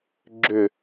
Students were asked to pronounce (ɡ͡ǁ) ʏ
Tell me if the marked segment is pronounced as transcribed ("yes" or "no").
yes